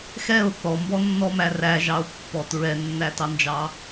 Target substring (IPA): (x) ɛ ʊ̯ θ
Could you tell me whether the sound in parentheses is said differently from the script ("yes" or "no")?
no